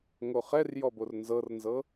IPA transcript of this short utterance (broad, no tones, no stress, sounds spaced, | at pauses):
ŋ o χ ɛ r j ɔ b o r n z ɤ r n z ɤ